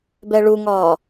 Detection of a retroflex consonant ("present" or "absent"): present